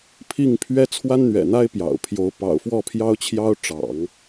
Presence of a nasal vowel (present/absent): absent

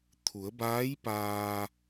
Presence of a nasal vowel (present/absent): absent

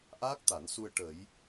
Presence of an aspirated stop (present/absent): absent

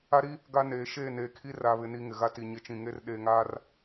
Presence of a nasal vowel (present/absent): present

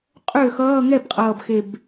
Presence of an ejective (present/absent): present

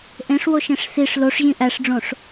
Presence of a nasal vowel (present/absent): present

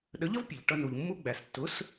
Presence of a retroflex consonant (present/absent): present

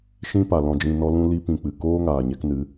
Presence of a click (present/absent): absent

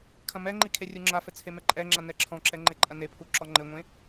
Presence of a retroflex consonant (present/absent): absent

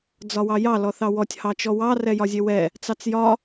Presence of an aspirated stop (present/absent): absent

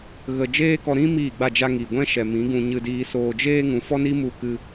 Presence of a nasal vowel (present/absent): present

